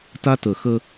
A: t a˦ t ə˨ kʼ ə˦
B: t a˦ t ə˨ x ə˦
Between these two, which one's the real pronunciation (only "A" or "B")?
B